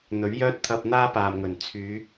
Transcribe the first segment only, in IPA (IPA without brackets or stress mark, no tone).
n̪